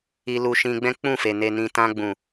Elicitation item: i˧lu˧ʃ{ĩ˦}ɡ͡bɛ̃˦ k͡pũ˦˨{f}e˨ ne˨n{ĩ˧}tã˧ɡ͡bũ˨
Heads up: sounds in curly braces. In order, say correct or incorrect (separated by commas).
incorrect, correct, incorrect